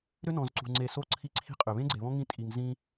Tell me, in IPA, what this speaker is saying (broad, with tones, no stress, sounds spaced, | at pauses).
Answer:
ɾ ʏ˦ n ɔ̃˨ z ǀ ṳ˨ ŋ͡ǀ e˨ s o˦ ǀʰ i˦ ǀʰ i̤˦ qʼ ʏ˨ β ẽ˦ ɡ͡ǀ e˨ β ɔ̃˦ ŋ ĩ˦ tʼ i˨ ŋ z ĩ˦